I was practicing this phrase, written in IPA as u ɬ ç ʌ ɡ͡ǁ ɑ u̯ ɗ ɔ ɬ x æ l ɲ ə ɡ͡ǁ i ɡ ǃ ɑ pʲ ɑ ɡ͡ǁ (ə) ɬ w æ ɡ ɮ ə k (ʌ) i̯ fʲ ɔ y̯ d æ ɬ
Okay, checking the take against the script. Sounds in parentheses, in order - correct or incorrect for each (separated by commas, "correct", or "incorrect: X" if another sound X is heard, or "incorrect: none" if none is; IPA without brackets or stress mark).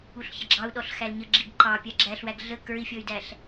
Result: incorrect: æ, incorrect: ə˞